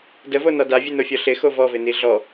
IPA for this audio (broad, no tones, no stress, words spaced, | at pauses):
dəvonɒ davʲɨnofʲɔ ɬɪxo vɔvɪni ɮɔ